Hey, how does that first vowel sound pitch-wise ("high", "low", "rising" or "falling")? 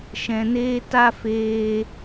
low